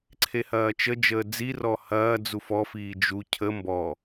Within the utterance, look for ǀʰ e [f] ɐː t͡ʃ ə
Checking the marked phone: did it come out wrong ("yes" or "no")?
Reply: yes